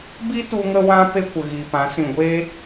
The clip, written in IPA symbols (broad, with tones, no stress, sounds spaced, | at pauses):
b i˦ t u˧ ŋ ə˧ w ã˧ p e˦ kʷ ə˨ ɣ i˨ p ã˨˦ s ĩ˨ ɡʷ e˦